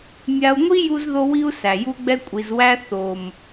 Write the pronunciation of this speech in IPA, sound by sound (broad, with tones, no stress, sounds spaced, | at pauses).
mʲ a˧ u̯ ŋʷ i˦ j u˦ z ð o˦ w i˦ u̯ s æ˨ j u˦ ɡ͡b ɛ˦ kʷʼ i˨ z w æ˧ θ o˨ m